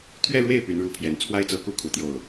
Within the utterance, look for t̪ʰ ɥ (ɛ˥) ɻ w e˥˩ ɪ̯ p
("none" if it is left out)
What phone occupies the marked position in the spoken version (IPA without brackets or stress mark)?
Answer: ɛ˥˧